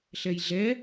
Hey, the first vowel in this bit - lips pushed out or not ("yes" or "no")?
no